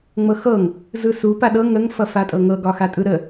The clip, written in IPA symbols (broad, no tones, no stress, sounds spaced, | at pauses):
ŋ͡m ɤ x ɤ ŋ | z ɯ s u p a ɗ ɤ ŋ ə ŋ f ʌ f a tʼ ɤ ŋ ɤ ɡ ɒ x a tʼ ɯ ɾ ə